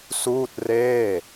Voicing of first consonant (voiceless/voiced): voiceless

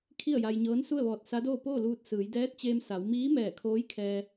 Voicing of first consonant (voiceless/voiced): voiceless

